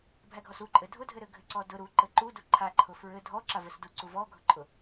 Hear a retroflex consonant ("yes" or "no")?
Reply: no